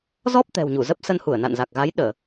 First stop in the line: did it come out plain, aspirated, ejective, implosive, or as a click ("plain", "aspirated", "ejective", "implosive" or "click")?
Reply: plain